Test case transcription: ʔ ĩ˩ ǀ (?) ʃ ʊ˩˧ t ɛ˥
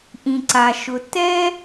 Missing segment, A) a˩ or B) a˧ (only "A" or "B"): A